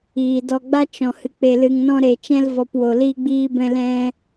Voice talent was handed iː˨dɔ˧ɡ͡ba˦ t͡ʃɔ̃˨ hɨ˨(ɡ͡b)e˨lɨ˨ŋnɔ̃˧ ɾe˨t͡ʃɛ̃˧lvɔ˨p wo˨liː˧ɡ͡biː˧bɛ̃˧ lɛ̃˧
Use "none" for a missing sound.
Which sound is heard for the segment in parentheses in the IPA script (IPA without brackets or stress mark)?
k͡p